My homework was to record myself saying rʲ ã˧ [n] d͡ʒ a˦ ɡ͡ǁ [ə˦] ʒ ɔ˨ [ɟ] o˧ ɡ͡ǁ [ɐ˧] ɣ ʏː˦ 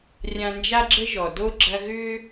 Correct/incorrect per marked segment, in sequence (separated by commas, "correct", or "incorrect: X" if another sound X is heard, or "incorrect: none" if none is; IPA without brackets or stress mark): correct, correct, incorrect: d, correct